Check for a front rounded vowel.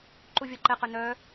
present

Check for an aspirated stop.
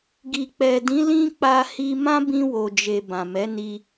absent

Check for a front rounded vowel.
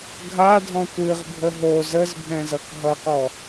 absent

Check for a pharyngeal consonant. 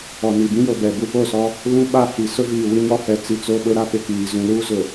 absent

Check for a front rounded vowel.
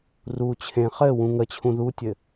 absent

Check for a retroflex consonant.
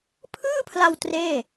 absent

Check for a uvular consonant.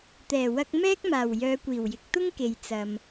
absent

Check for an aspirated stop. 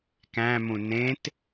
absent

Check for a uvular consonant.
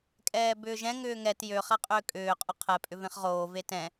present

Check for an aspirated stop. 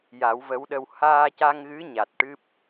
absent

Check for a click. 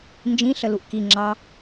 present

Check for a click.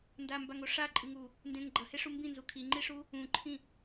present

